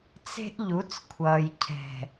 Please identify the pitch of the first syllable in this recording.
high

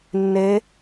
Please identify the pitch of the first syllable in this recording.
rising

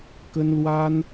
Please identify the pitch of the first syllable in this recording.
high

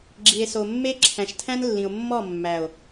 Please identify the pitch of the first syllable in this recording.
low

